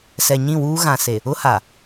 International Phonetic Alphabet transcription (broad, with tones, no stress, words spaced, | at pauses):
sɛ˨ɲĩ˦˨wuː˦ ɣã˨se˨ | ʊ˦ha˨